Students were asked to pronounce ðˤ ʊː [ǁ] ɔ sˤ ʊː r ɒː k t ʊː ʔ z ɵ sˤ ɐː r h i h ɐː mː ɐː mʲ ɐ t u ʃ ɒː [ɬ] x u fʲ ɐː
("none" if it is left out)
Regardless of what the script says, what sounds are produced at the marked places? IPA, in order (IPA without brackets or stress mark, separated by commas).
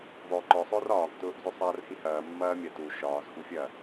ǃ, z